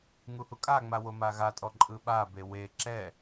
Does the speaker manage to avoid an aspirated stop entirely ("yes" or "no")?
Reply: yes